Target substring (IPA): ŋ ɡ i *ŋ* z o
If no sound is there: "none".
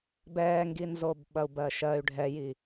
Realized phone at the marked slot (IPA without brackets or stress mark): n